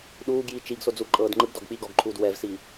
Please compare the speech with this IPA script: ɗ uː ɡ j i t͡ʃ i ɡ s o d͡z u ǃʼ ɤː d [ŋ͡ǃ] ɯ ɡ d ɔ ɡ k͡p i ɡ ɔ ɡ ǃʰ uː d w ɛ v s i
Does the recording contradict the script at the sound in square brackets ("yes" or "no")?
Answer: no